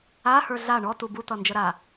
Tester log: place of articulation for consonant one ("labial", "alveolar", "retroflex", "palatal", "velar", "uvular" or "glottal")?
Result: glottal